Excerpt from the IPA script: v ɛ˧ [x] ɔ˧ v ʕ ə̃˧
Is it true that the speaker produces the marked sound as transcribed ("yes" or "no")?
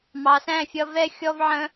no